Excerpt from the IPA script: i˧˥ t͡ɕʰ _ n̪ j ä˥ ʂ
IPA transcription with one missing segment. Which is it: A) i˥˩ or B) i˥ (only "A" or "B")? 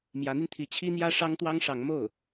B